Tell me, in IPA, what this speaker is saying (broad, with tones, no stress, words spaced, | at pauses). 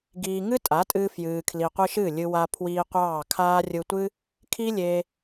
ɡiː˧ŋɨ˦tʼa˨˦tʼɨː˧ fjɨː˨kʰli˨qʷɨ˧ ʃɨ˦˨lʲɨ˧wa˧ pʰwiː˧qʷɑː˦˨kʰaː˦ rʲɯ˧tʷɨ˦ | kʰi˦lʲe˧